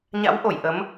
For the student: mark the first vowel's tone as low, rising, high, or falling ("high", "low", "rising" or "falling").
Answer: rising